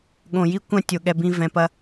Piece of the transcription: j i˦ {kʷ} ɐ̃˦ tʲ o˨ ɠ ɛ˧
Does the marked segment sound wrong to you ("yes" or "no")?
no